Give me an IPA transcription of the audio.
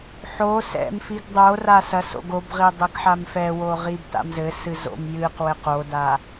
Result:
ħ o s ɛ̰ m f i ɡ dˤ o r a s ɐ s o̰ ɡ o b ʁ i dˤ ɨ ɡ ħ a m f ɛ w o ʁ i b t a̰ m z ɘ s ɨ z o̰ m j ɨ q w ɘ q o d a

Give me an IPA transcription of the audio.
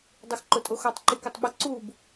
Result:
dˤ u x ǃ ʊ tʼ o x ɔ tˤ ǃ i k ʊ tˤ ɓ ʊ ǀ u b

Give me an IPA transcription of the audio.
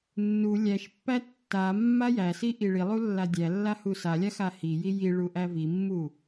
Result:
nː u lʲ æ ʃ pː æ tː a mː a j æ s i ʔ i ɭ i lˠ u lː a dʲ æ lː a h u s a lʲ a x a h i j i j i ɭ u ʔ æ v i mː u

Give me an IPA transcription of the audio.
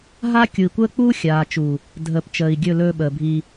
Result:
ɦ a˦ kʲ u˨ i̯ kʷ əː˦ k͡p u˦ xʲ aː˨ t͡ʃ u˨ | dʱ əː˨ p t͡ʃ əː˨ i̯ ɡʲ ɵ˦˨ l ɵː˦ ɓ əː˨ bʱ iː˦

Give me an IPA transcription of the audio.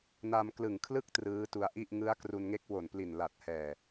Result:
n a˧ m k l ɯ˨˩ ŋ kʰ l ɯ˥˩ k̚ t r ɯː˦˥ t u˧ a̯ ʔ i˥˩ ʔ ŋ ɯ˦˥ a̯ k r u˧ n ŋ e˦˥ k̚ w o˨˩ n p l i˨˩ n l a˨˩ t̚ h ɛː˨˩

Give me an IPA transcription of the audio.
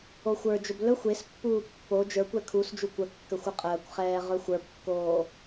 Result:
o xʷ ə˞ d͡ʒ ɵ b l ɵ xʷ e s pː uː pː o d͡ʒ ə˞ kʷ ɛ kʰ u s d͡ʒ u kʷ ə kː ə xʷ ə qʼ əː kʷ χ ɛː ʁ ɵ xʷ ə˞ b kː oː

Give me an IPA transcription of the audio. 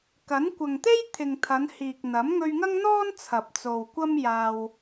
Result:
k ɐ˨˥ n kʷ ɐ˨ ŋ t̪ e˥ j t̪ʰ ɪ˨ ŋ t̪ʰ ɐ˨˧ n h iː˨ k̚ n̪ ɐ˨˥ m ŋ ɵ˧ ɥ ŋ ɐ˥ ŋ n̪ ɔː˥ n t͡sʰ ɐ˨ p̚ t͡s o˨ w kʷ ɐ˥ m j aː˧ w

